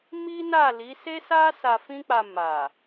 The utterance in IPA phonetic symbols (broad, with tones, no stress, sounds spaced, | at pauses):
m i˦ n a˦˨ l i˨˦ s e˦ s a˦ s a˧ f ĩ˦ k͡p a˧ m a˨